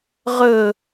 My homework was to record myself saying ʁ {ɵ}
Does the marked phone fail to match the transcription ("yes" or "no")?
no